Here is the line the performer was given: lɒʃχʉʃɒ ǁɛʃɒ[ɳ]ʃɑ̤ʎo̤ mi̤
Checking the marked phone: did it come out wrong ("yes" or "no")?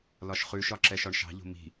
no